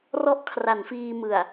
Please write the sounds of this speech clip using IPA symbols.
r ɔ˥˩ ʔ kʰ r a˩˦ n f iː˧ m ɯ˨˩ a̯

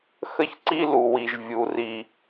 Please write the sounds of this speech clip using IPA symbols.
x ə˥ ç ǀ i˥ l u˩ w i˩ ʒ vʲ u˩ r i˩

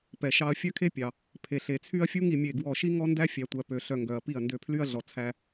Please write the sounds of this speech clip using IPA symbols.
p ɛ˨ ʃ ɑ˧ ɐ̯ fʲ œ˦ kʰ e˦ pʲ ɑ˨ | pʰ e˨ ɬ e˨ t͡sʰ y˦ ɐ̯ fʲ u˦ ŋ i˧ mʲ e˦˨ ɡ w ɔ˦˨ ʃ i˦ ŋ ɔ˦ n d æ˦ fʲ æ˨ tʷ æ˨ p ø˨ ɬ œ˨ ŋ ɡ œ˨ ɐ̯ p i˦˨ ɐ̯ n d ø˧ pʰ l y˦ ɐ̯ ɮ ɔ˨ t͡sʰ æ˦

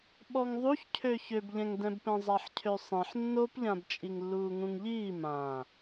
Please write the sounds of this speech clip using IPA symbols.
ɓ ɔ ŋ ðˤ u ç cʰ ø ç ø b ʎ ɛ̃ ŋ d ɛ̃ b p ɛ̃ zˤ a ħ cʰ ø sˤ ẽ ħ nː o p ʎ ã b t͡ʃʼ i ŋ lː uː ŋ ũ ŋ ʎ iː m ã

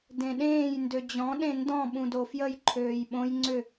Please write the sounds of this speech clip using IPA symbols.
d ẽ ɗ ẽː j n d ø d͡ʑ ɔ̃ ɗ ẽ n d ɔ̃ ɓ ũ d o f j ə j ǃʰ øː j ɓ õ j ŋ͡ǀ ʏ

